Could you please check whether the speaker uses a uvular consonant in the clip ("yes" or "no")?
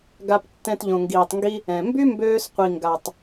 yes